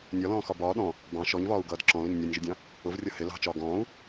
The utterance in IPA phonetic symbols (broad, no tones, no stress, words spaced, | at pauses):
nʲɒlɔ̃ːxɒ bɒː ɗɔ̃ | bɑ̃ ʃɔɲvɒːu̯ɡʌːd ǁɔ̃lʊɲ nʲɔnʲʒɪdʲɑ̃ | ʊvrʲʌ hɪ lɑ̤t͡ʃɒː ɡɔ̃ːu̯